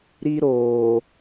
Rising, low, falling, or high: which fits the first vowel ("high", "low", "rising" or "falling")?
high